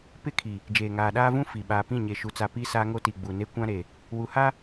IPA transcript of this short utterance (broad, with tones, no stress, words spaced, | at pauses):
pɪ˦˨kʰi˨ | d͡ʒeː˨ŋaː˨ɗaː˦vũ˦ fi˨ ɓaː˨pĩ˦˨ɲe˨ ʃu˨t͡sa˨ pi˦ saː˦ŋo˦ti˨ ɡ͡bu˨ne˦ kʷã˦ɾe˨ | wu˨ha˦